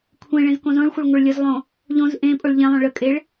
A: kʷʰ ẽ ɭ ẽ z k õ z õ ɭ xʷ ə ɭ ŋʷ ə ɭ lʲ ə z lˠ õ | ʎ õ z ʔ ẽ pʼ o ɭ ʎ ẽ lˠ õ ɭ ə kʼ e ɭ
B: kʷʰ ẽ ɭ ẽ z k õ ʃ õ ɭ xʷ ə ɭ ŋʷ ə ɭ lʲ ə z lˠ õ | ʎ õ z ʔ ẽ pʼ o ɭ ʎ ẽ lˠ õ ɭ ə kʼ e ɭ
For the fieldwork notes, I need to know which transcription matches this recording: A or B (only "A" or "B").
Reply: A